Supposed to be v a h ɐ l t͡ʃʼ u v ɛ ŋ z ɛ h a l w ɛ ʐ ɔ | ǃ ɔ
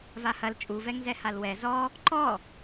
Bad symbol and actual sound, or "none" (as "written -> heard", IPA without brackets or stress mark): ʐ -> z